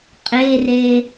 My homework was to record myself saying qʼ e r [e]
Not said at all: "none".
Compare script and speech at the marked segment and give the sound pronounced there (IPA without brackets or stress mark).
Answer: e